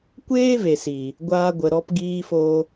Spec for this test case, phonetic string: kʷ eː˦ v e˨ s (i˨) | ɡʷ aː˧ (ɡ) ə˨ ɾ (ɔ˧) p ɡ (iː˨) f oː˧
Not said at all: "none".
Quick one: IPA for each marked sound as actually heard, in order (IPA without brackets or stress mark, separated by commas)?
iː˨, ɡʷ, ɔ˧, iː˧